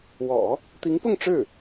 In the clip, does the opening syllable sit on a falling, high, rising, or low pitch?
low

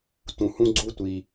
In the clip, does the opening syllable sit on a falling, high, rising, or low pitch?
low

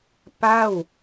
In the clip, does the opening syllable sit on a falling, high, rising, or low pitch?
falling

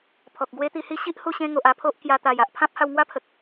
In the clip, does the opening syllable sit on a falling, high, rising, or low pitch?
low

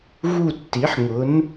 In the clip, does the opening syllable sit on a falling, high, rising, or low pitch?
falling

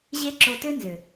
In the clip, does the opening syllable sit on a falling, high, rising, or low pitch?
high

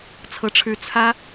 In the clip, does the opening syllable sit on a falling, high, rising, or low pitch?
falling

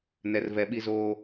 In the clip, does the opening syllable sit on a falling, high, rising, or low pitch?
low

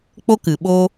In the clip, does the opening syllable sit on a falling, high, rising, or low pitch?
high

